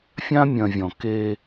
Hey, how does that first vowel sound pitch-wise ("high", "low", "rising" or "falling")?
high